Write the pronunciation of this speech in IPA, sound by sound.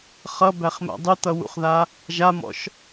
χ ʌ b æ χ m æ̰ dˤ ʉ t̪ ʌ w ṵ χ ð a | ʒ a m ɔ̰ ʃ

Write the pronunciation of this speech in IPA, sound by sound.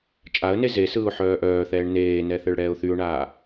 t͡ʃʼ a ə̯ n e z e s ɯː ʊ̯ ħ œː ʔ œː θ ɛː ɳ n eː n ɛ θ ɛ ɭ ɽ ɛː ʊ̯ θ y ʊ̯ ɳ aː

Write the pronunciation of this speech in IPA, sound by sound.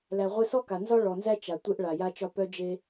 l æ˩ ʁʷ e˧ s ɔ˥ k a˩ n z ɒ˥ ɭ ɔ˩ n z æ˥ t͡ʃ a˩ tʷ e˧ ʔ ɭ a˩ j a˧ t͡ʃ ɒ˧ p œ˧ d͡ʒ e˧

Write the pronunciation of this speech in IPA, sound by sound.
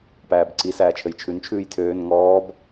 p æː b ǀ i s æː t͡ʃʰ ɘ j t͡ʃʰ ʉ n t͡ʃʰ ʉː j tʰ øː n ŋ ɔː b

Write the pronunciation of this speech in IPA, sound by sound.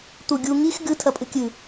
t̪ u ɡʲ u ŋ i x ɡ ɨ tʰ ɐ pʼ ɨ kʲ ɨ

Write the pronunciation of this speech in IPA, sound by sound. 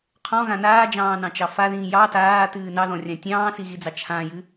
qʰ ɔ̃ ɣ ã n aː d͡ʒ ɑ̃ː n ɑ̃ t͡ʃ ɑ f a ð ĩː j ɑ t aː t ɨː n ɑ ð ɔ̃ rʲ ã tʲ ɑ̃ː s i ɣ i d͡z ɑ t͡ʃʰ ã j ɨ

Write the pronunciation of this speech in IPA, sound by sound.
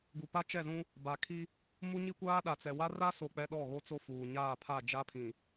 ɡ u˨ p a˦ t͡ʃ ɛ˦˨ z ũ˦ | b a˨ kʰ i˦ | m u˦ ɲ i˦ kʷ aː˦ ɗ a˨ t͡s ɛ˨ w a˦ r a˦ s o˨ k͡p ɛ˨ ɗ ɔ˦˨ ɣ o˦ t͡s o˦ f uː˨ ɲ aː˦˨ pʰ a˦˨ d͡ʒ a˦ pʰ ĩ˨

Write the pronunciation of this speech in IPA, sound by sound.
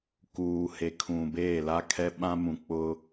k uː˨ h e˨ kʰ ũ˨ b eː˦˨ l a˦ kʰ ɛ˦ ɓ ã˦ m ũ˨ k͡p ʊ˦

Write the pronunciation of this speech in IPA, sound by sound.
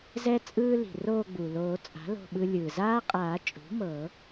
z ɛ˦ t͡sʼ ɯː˦ l i̤˩ r oː˦˨ ɡ͡b u˩ l oː˨˩˦ t͡sʼ a̤˩˥ l o̤˦˨ ɓ ɯ˦ lʲ ɯː˩ z aː˦ qʼ aː˨˩˦ t͡ʃʼ ṳ˩˥ m ɤ˨˩˦

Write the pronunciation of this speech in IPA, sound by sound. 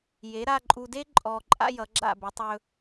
j e˩˥ ɾ a˧ ǃʼ u˧ d e˥ ǃʼ ɔ˧ ǃʼ a̰˥ j ʌ˩˥ ɡ͡ǁ a̰˥˩ b ɘ˩˥ tˤ ɵ˧

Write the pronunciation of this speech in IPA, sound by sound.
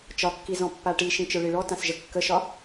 t͡ʃ ɒ kː i z ɔ̃ pː a ʈ i ʃ ĩ t͡ʃ ə˞ ɭ i ɭ ɔ t ã s ʒ ə kː ə ʃ ɒ

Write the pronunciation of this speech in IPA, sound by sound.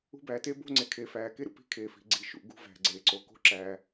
ṳ˦ b æː˧ t eː˦ b o̤˦ ŋ͡ǀ e˨ kʰ eː˨ f æː˨ k e˦ ɾ ṵ˨ p i̤˦˨ kʰ eː˨ f i̤˨ ɡ͡ǀ i˨ ʃ ṵ˨ ɡ ṳ˧ v æ̤˨ ɡ͡ǀ eː˨ ǀ o˨˦ k o̤˦ ǁ æː˧

